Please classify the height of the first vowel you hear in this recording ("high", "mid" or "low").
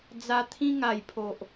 low